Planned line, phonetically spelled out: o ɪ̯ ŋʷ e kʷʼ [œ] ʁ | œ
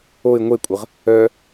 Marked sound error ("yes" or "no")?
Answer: yes